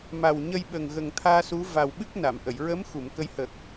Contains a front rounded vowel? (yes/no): no